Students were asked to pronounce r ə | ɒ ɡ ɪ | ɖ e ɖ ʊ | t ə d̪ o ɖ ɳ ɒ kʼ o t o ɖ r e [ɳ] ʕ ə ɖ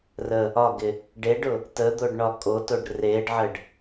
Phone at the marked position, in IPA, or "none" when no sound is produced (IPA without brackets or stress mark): ɖ